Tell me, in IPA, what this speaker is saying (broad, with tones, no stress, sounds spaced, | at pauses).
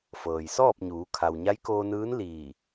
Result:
f ɤː˩ j s ɔː˥˨ p̚ ɲ uː˩˧ kʰ a˩ w ɲ a˧˥ j k oː˧ n ɯː˧˥ n l iː˧˩